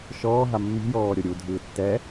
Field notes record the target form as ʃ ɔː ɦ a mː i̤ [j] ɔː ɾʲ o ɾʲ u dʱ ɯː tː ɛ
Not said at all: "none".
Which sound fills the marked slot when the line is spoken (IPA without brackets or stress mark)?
j